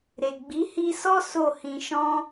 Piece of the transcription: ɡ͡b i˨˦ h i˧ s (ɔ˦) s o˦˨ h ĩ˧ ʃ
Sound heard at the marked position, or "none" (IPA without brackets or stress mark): ɔ˦